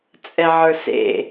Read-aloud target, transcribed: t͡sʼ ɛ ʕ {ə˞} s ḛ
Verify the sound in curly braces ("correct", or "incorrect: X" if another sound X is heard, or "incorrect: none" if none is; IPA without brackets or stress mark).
correct